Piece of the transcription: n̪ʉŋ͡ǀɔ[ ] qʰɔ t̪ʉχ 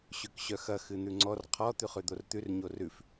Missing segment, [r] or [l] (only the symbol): r